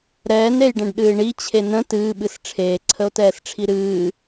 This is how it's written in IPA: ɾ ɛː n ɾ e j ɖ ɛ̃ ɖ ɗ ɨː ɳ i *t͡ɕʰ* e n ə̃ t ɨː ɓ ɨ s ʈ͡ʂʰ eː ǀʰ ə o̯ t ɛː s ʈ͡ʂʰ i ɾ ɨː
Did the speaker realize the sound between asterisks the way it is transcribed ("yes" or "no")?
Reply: yes